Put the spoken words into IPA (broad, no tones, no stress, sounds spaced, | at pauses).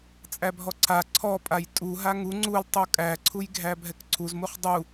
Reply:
t͡sʼ æ bʱ ɔ ǀʰ a ǀʰ ɔ pʼ a j tʼ u ɦ a ŋ u ŋ͡ǀ u l tˤ u kʼ æ ǀʰ u j ɡʱ æ bʱ ɛ k ǀʰ u z m u χ dˤ u